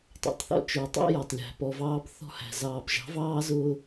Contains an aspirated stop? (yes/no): no